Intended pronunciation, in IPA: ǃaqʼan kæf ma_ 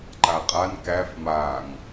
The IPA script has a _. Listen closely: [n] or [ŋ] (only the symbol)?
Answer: ŋ